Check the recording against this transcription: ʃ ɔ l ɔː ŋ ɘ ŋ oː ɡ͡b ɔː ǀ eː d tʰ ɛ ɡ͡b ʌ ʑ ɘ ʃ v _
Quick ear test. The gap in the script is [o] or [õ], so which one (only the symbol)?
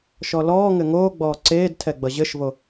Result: o